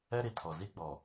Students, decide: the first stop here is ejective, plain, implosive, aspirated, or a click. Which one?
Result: aspirated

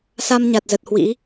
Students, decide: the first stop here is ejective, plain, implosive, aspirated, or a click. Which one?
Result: plain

